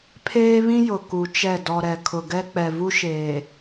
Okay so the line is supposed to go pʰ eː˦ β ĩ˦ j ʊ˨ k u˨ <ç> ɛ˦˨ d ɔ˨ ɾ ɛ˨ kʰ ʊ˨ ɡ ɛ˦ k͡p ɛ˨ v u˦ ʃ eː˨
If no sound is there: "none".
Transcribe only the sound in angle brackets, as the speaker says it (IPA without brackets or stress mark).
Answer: t͡ʃ